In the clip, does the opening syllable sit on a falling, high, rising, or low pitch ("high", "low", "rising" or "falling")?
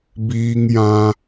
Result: high